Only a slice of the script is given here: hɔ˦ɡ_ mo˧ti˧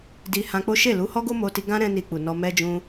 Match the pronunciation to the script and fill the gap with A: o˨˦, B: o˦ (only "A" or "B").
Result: B